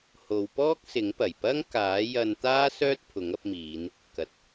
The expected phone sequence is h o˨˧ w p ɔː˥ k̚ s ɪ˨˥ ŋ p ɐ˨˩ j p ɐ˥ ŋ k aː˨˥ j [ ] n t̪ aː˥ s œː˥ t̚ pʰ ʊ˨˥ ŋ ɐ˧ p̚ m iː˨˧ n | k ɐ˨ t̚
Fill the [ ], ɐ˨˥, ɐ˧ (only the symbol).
ɐ˧